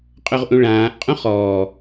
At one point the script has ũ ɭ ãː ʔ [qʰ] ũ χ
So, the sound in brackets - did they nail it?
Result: no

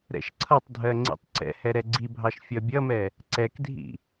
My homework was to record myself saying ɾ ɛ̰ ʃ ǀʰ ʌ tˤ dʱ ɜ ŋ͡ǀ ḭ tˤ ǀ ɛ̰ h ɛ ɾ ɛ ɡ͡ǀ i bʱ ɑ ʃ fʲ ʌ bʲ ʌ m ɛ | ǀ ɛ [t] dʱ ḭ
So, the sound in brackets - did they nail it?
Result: no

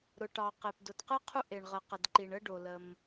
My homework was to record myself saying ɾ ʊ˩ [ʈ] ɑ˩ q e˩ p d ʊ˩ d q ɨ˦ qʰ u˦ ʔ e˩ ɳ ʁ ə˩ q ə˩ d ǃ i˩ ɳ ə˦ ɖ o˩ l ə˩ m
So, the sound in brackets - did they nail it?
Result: yes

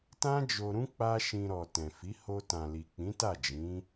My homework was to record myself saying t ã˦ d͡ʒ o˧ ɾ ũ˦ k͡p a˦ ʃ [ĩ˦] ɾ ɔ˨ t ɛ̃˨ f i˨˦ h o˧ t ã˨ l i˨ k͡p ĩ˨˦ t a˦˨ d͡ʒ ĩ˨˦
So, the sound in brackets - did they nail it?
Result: no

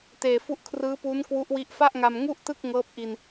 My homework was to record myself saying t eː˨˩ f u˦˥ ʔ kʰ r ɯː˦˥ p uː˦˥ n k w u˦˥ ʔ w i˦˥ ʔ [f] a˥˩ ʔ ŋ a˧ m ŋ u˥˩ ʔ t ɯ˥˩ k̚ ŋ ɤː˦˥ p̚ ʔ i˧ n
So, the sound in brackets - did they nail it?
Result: yes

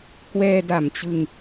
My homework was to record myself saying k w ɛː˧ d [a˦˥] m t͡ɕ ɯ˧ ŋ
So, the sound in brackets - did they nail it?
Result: no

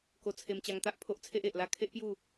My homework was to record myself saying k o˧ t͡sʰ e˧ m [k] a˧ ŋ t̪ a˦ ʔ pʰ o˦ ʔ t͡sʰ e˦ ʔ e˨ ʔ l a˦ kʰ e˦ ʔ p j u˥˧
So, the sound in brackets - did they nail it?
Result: no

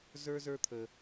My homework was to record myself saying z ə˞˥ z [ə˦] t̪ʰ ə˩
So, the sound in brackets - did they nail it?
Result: no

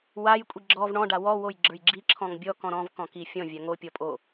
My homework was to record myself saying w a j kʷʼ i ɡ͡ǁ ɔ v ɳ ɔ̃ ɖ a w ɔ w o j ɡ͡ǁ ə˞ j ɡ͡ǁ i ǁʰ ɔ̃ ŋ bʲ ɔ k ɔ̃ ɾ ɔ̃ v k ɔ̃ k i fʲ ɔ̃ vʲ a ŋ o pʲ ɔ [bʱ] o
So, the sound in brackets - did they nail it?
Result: no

